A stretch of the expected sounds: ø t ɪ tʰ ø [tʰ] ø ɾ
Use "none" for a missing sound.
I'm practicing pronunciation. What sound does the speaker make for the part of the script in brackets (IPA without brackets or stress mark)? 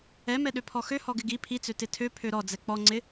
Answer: pʰ